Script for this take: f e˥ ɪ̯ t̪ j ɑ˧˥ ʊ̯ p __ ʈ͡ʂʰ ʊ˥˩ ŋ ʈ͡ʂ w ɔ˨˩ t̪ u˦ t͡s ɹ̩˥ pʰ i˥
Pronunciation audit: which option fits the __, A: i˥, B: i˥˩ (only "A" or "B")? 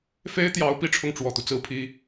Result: A